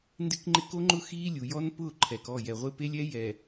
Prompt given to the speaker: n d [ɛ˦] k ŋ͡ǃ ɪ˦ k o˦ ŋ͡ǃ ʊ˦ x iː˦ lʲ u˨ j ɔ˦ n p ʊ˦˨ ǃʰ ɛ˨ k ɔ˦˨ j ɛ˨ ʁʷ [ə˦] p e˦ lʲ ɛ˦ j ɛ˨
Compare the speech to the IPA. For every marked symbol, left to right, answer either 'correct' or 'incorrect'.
incorrect, incorrect

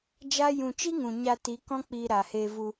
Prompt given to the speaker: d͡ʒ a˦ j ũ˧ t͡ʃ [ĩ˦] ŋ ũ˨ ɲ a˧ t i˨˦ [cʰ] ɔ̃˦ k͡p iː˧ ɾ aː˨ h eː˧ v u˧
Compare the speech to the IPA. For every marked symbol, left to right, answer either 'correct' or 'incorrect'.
incorrect, incorrect

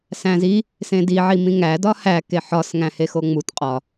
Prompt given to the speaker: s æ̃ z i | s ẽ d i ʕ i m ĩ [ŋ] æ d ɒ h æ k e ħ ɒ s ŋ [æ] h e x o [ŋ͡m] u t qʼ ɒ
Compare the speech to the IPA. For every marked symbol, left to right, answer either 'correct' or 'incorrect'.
correct, incorrect, correct

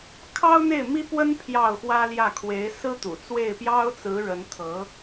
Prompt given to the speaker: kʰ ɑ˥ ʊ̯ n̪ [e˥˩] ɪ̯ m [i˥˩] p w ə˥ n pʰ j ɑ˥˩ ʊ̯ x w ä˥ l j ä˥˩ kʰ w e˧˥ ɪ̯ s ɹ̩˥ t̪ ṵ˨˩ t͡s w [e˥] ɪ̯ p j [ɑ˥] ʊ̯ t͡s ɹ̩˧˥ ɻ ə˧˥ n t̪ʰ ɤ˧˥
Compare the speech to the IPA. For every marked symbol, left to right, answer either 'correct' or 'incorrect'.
correct, incorrect, incorrect, correct

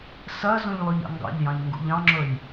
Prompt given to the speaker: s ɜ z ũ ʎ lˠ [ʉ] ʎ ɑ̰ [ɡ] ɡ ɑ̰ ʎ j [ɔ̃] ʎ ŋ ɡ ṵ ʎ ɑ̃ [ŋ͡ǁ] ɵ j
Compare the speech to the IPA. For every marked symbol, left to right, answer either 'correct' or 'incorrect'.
correct, incorrect, incorrect, correct

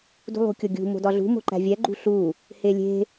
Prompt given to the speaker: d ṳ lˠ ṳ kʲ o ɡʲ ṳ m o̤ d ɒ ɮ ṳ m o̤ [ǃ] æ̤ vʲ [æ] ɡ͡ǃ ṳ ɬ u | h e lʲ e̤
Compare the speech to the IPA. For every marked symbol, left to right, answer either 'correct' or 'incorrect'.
correct, correct

